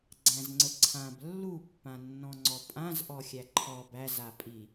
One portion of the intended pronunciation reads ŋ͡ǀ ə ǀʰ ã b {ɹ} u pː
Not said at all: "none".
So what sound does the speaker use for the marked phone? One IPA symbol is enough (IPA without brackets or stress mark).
lː